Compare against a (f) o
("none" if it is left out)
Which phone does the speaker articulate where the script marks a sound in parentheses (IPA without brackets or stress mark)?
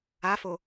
f